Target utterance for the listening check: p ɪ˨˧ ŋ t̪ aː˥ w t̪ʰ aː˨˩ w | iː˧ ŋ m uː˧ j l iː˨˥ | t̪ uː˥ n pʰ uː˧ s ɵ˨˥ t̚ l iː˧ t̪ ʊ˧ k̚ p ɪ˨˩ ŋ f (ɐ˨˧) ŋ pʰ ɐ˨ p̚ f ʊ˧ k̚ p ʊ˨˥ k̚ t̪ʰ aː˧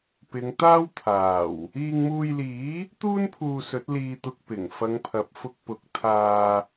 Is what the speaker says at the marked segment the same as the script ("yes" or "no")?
yes